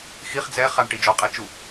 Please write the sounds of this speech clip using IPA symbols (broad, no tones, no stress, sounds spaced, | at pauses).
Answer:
x i χ d͡z ɛ χ a ɳ ʈ i d͡ʒ ɔ qʼ ɛ t͡ʃ u